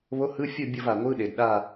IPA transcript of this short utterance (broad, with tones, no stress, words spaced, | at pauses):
βo˧˥˧hɯ˧˥˧fʲu˥˨ bʲʌ˥˨va˩ŋʷɯ˧˥˧ ɗe˩dɗa˥˨